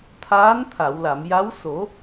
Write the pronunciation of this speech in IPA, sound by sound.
t̪ʰ aː˧˥ n t̪ʰ a˨˩˨ w l a˨˩˨ m j a˧˥ w s o˨˩˦

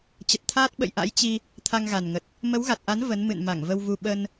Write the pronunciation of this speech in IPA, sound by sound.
t͡ɕ ə˨˩ t̚ t̪ʰ aː˦˥ t̚ ɓ ə̰˧˨ j ʔ a̰˧˥ j t͡ɕ i˧ | t̪ʰ a˧ ŋ ɣ a˨˩ n ŋ ə˨˩ t̚ | m ə˨˦ w ɣ a˨˩ t̚ ʔ a˨˦ n v ə˨˦ n m ɨ̰˧˨ n m a˧˩ ŋ v ə˧ w v u˧ ɓ ə˧ n

